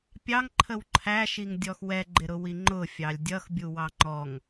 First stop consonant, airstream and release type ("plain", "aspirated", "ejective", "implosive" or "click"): plain